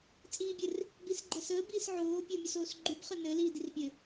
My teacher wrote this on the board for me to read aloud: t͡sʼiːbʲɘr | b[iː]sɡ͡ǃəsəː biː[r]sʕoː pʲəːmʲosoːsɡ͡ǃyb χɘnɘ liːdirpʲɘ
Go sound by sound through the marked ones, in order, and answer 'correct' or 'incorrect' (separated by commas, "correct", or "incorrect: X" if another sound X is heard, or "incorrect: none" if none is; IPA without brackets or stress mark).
incorrect: i, incorrect: none